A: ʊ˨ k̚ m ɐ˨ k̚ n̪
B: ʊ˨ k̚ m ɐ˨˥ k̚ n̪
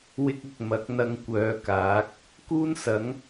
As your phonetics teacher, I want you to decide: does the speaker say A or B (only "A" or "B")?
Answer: B